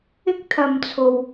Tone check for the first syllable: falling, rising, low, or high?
high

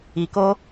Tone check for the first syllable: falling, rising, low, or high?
low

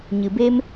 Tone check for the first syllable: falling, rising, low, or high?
low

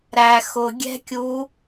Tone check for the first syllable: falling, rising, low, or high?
low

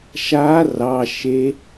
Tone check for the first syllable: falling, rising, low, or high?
rising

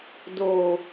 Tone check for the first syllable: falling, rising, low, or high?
low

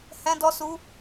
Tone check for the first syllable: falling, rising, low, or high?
high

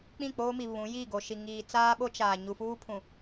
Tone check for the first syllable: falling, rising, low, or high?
falling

